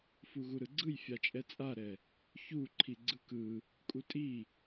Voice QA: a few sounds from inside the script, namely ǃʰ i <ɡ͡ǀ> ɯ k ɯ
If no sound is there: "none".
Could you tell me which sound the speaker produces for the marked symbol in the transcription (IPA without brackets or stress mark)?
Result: ɡ͡ǀ